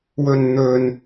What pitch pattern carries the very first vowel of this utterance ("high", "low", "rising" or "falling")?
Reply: low